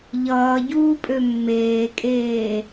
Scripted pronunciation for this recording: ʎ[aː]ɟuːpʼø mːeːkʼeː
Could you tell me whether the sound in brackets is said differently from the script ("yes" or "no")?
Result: yes